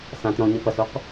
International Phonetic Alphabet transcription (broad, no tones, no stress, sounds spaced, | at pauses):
s ã t ɾ ɔ̃ ɲ ɐ p ɐ s o q